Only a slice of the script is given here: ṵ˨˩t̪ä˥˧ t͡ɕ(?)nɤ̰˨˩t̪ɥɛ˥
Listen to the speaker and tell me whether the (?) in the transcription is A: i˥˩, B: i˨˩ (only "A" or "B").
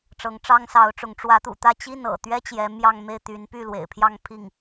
A